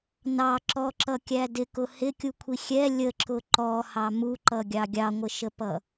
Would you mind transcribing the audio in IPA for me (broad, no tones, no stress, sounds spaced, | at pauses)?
n ɑ ǁ ɔ ǁ ʌ kʲ æ d ɪ k ʊ h ɪ kʲ u kʷʰ i xʲ ɛ lʲ ə ǁ ʊ ǃ ɔ h ɑ m u ǃ ʌ ɡʲ ɑ ɡʲ ɑ ŋʷ ə ʃ ə p ʌ